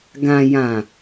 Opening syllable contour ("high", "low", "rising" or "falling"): low